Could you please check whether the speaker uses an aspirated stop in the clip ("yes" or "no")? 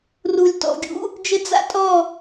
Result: no